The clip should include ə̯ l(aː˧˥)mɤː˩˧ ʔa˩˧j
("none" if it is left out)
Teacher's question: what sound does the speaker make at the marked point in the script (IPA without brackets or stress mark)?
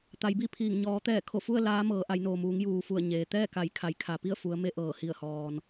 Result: aː˧˥